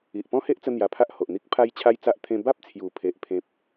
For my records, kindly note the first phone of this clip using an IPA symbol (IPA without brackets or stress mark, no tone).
i